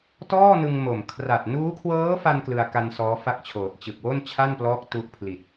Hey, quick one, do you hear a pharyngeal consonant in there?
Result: no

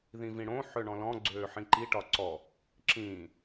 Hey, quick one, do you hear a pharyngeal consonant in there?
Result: yes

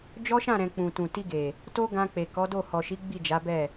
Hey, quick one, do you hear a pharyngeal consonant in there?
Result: no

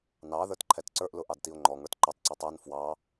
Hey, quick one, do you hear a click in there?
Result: yes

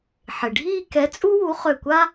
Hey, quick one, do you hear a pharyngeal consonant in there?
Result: yes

